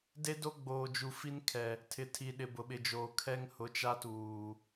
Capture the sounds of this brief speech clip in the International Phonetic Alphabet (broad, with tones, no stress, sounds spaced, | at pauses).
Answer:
d e˦ d o˦ ɡ͡b oː˨ d͡ʒ u˨ f i˦ n kʰ ɛ˨ | tʰ ɪ˨ tʰ i˨ ɗ ɪ˨ b ʊ˨ ɓ ɪ˨ d͡ʒ oː˨ kʰ ɛ˦ ŋ h ʊ˨˦ t͡ʃ a˦ t uː˨